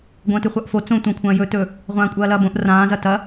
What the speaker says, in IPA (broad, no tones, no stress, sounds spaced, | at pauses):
ɡʷ ɐ̃ː t ʉ χʷ a ʔ f o t͡s õ tʷ ã kʷʰ ɐ̃ː j ɵ t ɵ | ʁʷ ãː kʷʼ ɐː l ɐː b õ ʔ r ãː z ɐ t ɐ